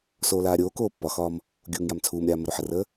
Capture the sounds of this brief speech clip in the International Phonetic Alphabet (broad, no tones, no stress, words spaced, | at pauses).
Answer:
soːlaːɾʲoːkoː pːɒxɒːm | ɡʲuːŋjamt͡sʰuːmɾʲaː məɾuħərəː